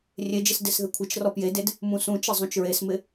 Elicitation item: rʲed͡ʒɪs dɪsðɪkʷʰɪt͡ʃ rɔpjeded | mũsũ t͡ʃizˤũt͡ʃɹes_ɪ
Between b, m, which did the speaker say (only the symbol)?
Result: m